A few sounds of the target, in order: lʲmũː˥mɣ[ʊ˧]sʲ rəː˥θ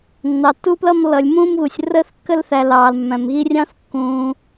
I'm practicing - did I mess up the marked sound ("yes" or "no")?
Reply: yes